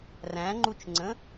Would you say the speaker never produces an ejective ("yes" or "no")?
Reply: yes